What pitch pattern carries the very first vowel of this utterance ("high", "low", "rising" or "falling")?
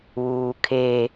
low